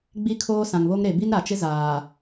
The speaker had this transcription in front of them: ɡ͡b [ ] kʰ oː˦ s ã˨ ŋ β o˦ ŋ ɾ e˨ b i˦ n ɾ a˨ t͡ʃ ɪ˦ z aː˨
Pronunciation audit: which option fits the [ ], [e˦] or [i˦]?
i˦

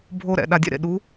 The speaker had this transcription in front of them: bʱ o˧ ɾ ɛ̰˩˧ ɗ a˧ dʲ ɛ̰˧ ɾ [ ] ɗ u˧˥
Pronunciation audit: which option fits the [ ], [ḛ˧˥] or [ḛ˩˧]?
ḛ˩˧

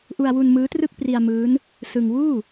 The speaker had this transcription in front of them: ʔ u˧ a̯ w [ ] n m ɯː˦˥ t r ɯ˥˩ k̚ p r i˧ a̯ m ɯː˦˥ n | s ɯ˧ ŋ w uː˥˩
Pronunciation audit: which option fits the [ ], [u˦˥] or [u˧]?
u˧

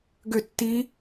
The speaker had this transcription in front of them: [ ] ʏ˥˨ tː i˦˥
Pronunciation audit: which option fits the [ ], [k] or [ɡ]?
ɡ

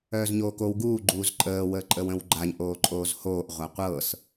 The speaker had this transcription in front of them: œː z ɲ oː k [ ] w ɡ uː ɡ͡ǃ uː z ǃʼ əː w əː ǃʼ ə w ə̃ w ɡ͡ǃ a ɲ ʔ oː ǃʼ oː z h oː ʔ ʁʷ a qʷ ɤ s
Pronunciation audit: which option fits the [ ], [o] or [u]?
o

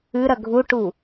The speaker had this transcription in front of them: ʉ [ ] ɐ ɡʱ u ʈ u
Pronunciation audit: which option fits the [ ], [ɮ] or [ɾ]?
ɾ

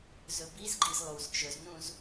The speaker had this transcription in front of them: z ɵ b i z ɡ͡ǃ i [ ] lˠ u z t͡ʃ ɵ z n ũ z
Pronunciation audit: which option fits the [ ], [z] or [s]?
z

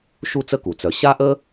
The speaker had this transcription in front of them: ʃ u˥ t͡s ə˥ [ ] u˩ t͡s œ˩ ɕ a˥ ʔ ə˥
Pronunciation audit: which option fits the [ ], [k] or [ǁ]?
k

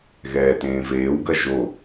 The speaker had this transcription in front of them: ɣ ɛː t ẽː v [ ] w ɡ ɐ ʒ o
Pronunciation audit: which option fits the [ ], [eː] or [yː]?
eː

